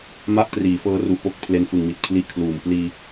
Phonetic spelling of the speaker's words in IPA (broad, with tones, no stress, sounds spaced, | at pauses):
m a˥˩ ʔ t r iː˩˦ f ɤː˦˥ r u˨˩ ʔ p o˦˥ k̚ pʰ l e˦˥ n f ɯ˨˩ ŋ m i˨˩ t̚ kʰ l i˦˥ ʔ kʰ l uː˨˩ m p l iː˧